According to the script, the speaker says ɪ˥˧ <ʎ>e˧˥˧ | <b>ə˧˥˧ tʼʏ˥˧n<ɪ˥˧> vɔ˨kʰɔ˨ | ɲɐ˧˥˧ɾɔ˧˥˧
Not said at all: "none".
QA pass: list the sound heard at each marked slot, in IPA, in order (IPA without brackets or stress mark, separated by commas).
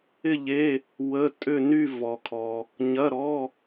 ʎ, w, y˥˧